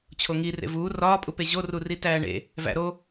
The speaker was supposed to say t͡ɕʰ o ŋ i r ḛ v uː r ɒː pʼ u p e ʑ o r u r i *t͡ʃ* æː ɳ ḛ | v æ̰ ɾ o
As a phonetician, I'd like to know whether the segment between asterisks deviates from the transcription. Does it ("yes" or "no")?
yes